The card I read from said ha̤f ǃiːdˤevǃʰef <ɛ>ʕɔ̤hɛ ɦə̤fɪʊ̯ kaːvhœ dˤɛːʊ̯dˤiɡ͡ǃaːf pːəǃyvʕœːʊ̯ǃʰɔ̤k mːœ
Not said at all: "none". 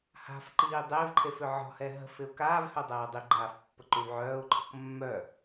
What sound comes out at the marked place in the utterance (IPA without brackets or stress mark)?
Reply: ʏ